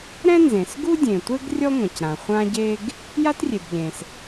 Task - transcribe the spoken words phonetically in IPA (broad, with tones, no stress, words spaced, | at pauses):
ɾɛ̃˥nzẽ˩sɡu˥ dʲẽ˩tʷe˥ɡ rʲɔ˥ŋʷã˩cɾã˩ χʷã˥ɟe˥ɡ | ja˥trʲe˩bʎẽ˩s